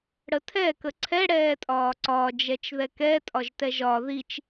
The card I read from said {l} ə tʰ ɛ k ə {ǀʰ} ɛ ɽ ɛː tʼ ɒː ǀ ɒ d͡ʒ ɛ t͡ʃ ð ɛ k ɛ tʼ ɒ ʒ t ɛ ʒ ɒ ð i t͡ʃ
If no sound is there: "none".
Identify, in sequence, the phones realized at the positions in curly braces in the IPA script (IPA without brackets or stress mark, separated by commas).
ɽ, ǀʰ